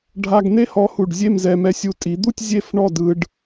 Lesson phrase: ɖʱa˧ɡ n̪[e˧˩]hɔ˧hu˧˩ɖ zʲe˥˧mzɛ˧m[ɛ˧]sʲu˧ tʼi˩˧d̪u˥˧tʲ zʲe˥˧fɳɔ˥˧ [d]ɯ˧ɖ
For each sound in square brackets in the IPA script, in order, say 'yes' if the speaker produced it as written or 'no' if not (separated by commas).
no, yes, yes